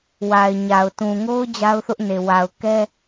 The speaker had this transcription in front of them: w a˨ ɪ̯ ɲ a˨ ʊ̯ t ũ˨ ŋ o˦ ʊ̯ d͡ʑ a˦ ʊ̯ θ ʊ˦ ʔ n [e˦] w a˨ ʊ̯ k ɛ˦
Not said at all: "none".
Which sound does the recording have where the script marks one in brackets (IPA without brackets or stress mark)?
e˨